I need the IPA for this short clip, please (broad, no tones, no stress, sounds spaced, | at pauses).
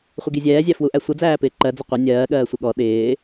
χʷ ɪ ɡ i zʲ ɛː zʲ æ f w u ʔ æ sʷ ʌ d͡z æː p ɪː ǃ ɜ d͡z ʌ qʷ ɪ nʲ ɜː ɠ ɜː sʷ ɪ ɠ ɔ ɗ ɪː